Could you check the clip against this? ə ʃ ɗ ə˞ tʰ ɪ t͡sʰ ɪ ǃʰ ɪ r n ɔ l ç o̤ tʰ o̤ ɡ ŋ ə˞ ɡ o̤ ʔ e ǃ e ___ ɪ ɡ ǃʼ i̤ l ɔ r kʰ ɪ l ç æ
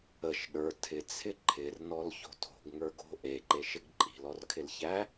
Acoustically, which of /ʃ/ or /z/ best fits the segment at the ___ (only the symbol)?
ʃ